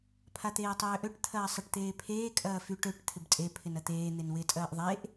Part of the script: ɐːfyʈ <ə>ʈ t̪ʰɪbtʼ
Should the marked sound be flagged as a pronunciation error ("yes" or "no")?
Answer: yes